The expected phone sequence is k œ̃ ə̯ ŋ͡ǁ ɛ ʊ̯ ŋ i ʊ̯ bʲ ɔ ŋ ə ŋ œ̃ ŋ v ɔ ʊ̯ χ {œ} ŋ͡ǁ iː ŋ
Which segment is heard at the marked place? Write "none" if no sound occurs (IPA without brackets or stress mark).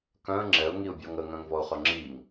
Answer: œ